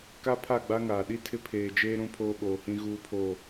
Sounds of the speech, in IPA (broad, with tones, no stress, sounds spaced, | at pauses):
k a˦ pʰ a˦˨ ɡ͡b a˦ ŋ aː˨ ɗ i˦ tʰ ɪ˦ pʰ eː˨ d͡ʒ eː˦ ɾ ũ˦ pʰ oː˦ ɓ oː˨ h ĩ˦ ɣ uː˦ pʰ o˦˨